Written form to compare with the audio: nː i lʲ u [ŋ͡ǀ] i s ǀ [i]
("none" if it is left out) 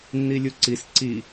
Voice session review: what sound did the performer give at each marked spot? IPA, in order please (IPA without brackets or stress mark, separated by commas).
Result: ǀ, i